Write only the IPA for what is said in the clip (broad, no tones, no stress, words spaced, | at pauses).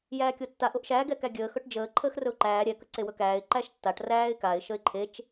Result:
jæːkʲotːaʔ oʔʃæːɡ ɛkæɡʲəː xɵʈd͡ʒəː ǃʰəːxrɵʊ̯ǃæː ɾʲɛ kəǀewɵkæːɪ̯ ǃæʃtːaʈ ræːɪ̯kaɪ̯ ʃəɪ̯ǃʰet͡ʃ